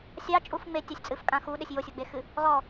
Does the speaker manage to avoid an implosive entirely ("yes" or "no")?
no